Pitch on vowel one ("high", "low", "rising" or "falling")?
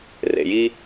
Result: low